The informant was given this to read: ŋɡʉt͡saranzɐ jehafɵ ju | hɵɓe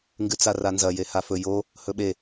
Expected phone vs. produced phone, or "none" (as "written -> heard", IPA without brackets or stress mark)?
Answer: u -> o